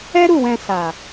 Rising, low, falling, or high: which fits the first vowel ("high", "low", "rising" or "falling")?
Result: high